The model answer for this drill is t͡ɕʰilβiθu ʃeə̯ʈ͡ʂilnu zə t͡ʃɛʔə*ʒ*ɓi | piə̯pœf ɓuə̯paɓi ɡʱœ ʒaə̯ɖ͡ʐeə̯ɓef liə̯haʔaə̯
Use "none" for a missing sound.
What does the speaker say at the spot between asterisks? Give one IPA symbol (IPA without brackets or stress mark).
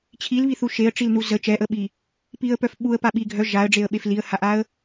none